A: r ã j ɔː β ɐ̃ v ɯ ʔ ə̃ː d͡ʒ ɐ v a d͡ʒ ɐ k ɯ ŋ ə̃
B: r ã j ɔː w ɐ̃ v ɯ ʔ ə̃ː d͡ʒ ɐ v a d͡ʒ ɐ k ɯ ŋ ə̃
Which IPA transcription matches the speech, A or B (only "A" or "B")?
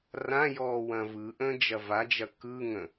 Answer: B